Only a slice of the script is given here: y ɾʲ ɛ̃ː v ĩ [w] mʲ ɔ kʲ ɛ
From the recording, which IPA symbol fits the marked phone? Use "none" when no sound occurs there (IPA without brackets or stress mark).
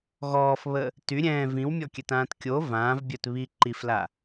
w